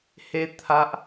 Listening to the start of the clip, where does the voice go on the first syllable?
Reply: high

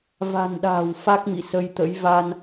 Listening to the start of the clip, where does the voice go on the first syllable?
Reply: low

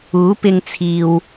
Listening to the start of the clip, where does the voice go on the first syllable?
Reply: rising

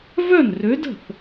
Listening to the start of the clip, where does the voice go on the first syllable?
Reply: falling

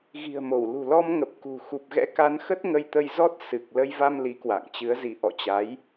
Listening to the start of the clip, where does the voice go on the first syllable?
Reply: low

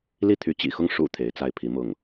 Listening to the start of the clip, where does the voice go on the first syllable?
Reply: falling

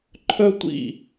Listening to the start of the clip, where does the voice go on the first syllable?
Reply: high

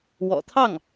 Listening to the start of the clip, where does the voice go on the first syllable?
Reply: low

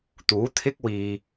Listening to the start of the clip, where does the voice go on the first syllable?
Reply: rising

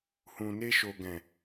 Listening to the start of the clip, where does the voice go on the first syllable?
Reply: low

